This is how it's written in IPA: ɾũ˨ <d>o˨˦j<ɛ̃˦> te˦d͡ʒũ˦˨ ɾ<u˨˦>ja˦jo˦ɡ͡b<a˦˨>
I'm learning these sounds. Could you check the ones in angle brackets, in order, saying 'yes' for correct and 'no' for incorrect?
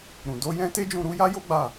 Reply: yes, yes, yes, yes

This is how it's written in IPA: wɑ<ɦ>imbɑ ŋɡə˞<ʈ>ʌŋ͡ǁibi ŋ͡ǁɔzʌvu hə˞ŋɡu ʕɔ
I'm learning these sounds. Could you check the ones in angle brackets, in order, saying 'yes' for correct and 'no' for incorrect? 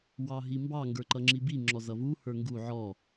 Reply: yes, no

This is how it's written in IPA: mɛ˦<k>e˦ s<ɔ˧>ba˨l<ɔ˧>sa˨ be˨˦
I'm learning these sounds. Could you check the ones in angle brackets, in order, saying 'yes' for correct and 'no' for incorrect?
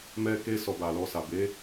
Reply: yes, yes, yes

